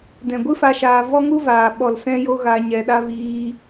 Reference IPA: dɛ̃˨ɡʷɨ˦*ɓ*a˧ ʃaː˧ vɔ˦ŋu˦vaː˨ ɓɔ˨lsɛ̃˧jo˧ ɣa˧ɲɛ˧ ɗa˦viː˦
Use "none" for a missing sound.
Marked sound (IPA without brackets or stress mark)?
f